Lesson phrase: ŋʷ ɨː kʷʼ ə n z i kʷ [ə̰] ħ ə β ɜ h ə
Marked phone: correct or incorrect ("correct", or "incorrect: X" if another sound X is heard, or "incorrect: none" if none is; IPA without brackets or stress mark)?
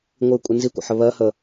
correct